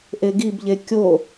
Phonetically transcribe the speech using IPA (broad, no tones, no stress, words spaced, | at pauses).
ʔeɡibʎe kʲo